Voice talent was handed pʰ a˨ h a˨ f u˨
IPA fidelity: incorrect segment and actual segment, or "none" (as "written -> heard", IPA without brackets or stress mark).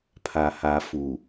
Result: none